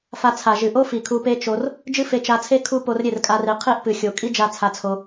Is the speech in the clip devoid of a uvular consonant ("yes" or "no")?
no